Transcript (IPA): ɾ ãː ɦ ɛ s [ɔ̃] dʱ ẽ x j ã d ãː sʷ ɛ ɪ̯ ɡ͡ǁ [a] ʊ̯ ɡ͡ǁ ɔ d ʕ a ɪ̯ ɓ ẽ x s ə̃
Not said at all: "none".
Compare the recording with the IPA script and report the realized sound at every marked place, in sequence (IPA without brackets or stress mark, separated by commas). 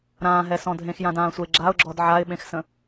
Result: ɔ̃, a